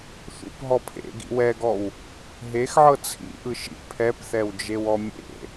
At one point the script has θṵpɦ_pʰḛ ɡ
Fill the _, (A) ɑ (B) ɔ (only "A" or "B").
B